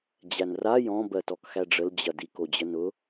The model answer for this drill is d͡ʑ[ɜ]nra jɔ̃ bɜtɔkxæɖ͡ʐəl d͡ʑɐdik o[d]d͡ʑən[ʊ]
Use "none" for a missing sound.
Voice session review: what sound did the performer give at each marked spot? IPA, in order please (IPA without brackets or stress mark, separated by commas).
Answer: æ, none, ʊ